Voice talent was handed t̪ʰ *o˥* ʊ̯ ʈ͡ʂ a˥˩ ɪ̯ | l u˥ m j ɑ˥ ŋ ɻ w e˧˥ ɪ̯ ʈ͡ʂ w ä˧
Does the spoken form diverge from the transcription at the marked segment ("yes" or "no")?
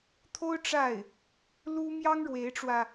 no